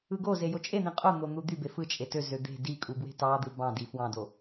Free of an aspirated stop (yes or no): yes